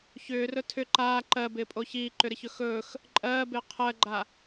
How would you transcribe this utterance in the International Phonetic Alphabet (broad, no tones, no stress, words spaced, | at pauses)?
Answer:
çʏːrɵ tʰʏ ǃaː ǃɜbɪːpʼo çiːǃʏɾɪçɵ xɵːx | ǃʼɜːbɪː qʰɜɡ͡ǃa